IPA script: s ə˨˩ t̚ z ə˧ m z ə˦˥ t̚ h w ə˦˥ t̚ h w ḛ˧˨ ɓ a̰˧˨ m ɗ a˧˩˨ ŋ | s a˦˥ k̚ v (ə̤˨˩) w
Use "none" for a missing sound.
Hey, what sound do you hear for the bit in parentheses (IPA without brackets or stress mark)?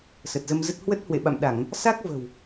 ə̤˨˩